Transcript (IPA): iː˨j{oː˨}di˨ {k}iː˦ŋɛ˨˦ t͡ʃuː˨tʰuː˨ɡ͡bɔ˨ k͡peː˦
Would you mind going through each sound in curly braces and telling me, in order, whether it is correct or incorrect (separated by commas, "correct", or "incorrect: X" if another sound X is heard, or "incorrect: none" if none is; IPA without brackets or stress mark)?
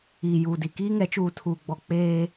incorrect: uː˨, correct